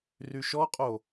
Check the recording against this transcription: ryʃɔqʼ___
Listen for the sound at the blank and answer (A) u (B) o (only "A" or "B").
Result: B